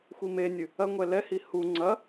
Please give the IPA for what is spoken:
xʷ i m e nʲ ɨ | ɐ ŋʷ ɛ l ɛ h i h u ŋ͡ǀ ɐ

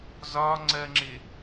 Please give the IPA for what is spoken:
z ɒ ŋ͡ǀ ɜ ŋ͡ǁ ɪ

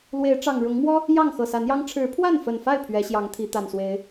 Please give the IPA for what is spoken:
l w e˨˦ ɪ̯ ʈ͡ʂ ɑ˨˩ ŋ ɻ ʊ˨˦ ŋ m w ɔ˦ | j ɑ˥˨ ŋ x ɤ˨˩ s a˨˦ n j ɑ˦ ŋ ʈ͡ʂʰ ɻ̩˨˦ pʰ w a˥˨ n f ə˨˩ n f a˥˨ ɪ̯ pʰ ɥ ɛ˨˦ ɕ j ɑ˨˦ ŋ t̪ʰ i˨˦ t̪ a˨˩ n s w e˨˦ ɪ̯

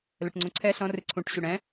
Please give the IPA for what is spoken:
l ə ʈ ŋ͡ǀ ũ ǀʰ ɛ ɬ ɔ̃ r ɨ ǀʰ ũ ʈ ɕ ʉ ɽ ɛ̃

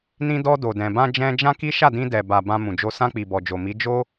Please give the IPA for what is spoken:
n ĩ˧ d ɔ˧ d o˨ d ɛ̃˨ b ã˧ d͡ʒ ɛ̃˧ d͡ʒ ã˦ k i˦ ʃ a˦˨ d ĩ˧ d ɛ˨ b a˨ b ã˧ m ũ˨ d͡ʒ o˧ s ã˧ k͡p i˨ b ɔ˨ d͡ʒ o˨ m i˨˦ d͡ʒ o˦

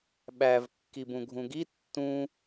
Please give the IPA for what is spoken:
ɓ æ v kː i b ũ ɡʱ ũ ɡ i tː ũ

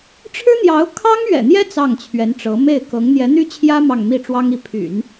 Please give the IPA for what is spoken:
ʈ͡ʂʰ ɻ̩˥ n̪ j ɑ˧˥ ʊ̯ kʰ ɑ˥ ŋ ɥ ɛ̰˨˩ n̪ j ɛ˥ t͡s ɑ˥˩ ŋ t͡ɕʰ ɥ ɛ˧˥ n ʈ͡ʂ ɤ˧˥ m e˥˩ ɪ̯ k ɤ˧˥ ŋ n̪ j ɛ˧˥ n̪ y˥ t͡ɕʰ j ä˥ m ɑ˥˧ ŋ m i˥˩ ʈ͡ʂ w ɑ˥ ŋ i˧˥ pʰ y̰˨˩˦ n

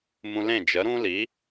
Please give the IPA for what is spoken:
m ũ˧ l ẽ˥˩ d͡ʒ ə˩˥ ɾ ũ˥ l i˩˥

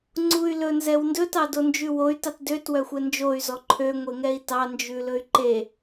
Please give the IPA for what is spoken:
ŋ͡ǀ u y̯ l ɵ n z ɛ w n d ɵ t ɑ d o n d͡ʒ ʉ w o y̯ t ɑ t d ø t w œ xʷ ɛ n d͡ʒ o y̯ z ɔ ǃʰ ø ŋʷ e ŋ ɛ i̯ t ɑ n d͡ʒ ʉ l ɵ y̯ ǃ e

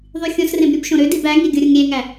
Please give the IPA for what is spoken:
ðˤ y xʲ õ s r ẽ b ɾʲ u b ʃ õ ɾ ø d i b æ ŋ i ɡʲ o ɾʲ u ŋ ɾʲ e ŋ æ

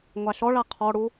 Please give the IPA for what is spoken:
ŋʷ a ʃ ɔ ɭ a qʰ ɔ ɽ u

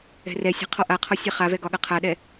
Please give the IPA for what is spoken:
ɛ̤ r ɛ sʲ ɛ̤ qʰ ɔ ʔ a qʰ ɒ sʲ a χ a v ɛ ɡ ɒ ɠ ɐ qʰ a ɗ ɛ

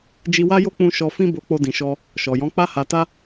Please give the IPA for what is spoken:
d͡ʒ i˧ w a˦ j o˦ k͡p ũ˧ ʃ ɔ˧ f ĩ˦ b o˧ k͡p o˧ d ĩ˨ ʃ ɔ˧ | ʃ ɔ˨ j ɔ̃˨˦ k͡p a˧ h a˨ t a˧

